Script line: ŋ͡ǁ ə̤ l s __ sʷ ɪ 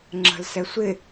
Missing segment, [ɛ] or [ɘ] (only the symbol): ɛ